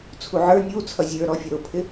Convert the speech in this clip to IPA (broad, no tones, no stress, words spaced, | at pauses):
t͡sʰuʕə˞ nʲu t͡sʰʌzʲə˞ɾɔfʲʌ ɾʊpʰɪ